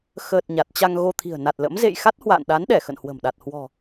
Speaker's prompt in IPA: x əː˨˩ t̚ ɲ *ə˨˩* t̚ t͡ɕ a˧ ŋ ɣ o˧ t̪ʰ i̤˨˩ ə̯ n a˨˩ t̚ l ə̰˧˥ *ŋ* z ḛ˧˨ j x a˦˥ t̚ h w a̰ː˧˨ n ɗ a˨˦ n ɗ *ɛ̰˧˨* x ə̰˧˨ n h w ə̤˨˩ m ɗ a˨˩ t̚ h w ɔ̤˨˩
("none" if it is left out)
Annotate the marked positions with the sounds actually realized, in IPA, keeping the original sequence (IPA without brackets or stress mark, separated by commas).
a˨˩, m, ɛ˧˩